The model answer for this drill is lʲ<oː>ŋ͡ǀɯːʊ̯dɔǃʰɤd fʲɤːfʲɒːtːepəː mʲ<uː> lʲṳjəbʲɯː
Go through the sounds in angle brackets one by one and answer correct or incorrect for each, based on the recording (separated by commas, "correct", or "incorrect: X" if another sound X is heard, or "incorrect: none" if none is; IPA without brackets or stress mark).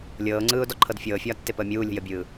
incorrect: ɤː, correct